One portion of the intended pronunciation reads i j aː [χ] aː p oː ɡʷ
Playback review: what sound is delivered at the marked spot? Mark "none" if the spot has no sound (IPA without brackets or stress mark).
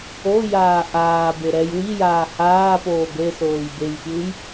h